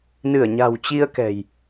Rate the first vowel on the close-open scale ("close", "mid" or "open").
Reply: close